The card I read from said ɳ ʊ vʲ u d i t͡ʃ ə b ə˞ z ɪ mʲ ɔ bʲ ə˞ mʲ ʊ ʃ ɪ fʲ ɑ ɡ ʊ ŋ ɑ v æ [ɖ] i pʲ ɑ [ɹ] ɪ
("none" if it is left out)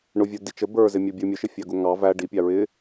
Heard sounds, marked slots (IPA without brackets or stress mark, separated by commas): ɖ, ɹ